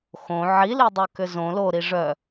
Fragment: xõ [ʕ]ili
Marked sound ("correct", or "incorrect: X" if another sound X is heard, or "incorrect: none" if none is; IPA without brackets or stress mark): correct